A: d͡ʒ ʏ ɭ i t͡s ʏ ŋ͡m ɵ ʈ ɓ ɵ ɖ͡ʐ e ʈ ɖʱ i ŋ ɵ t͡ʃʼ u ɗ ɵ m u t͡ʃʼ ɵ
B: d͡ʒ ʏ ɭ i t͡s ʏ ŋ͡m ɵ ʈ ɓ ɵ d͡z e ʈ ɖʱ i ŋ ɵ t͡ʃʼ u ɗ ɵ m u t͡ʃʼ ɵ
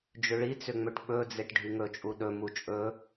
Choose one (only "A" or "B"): B